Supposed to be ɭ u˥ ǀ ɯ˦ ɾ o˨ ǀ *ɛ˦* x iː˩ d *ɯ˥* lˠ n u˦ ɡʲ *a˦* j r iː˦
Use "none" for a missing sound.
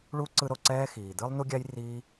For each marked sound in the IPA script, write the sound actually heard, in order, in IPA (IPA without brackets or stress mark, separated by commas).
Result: ɛː˦, ɯ˥, a˦